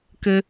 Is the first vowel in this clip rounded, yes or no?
no